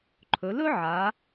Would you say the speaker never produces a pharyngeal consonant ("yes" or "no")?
no